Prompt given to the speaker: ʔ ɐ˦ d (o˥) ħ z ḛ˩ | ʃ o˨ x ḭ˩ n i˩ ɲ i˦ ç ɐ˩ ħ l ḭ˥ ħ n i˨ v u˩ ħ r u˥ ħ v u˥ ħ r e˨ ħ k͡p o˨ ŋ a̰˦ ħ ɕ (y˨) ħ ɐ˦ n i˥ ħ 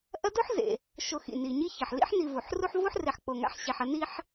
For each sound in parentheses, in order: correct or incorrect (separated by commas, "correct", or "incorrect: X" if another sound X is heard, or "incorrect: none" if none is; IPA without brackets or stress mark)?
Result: correct, incorrect: e˨